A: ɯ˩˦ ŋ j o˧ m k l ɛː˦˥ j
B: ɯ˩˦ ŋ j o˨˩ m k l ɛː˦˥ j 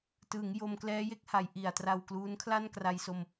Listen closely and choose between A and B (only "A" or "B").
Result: A